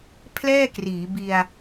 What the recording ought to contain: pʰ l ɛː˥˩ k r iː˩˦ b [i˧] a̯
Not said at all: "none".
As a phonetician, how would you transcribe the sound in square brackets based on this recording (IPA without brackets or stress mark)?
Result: i˧